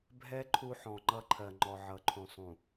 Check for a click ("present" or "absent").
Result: present